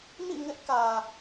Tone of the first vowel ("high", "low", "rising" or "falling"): falling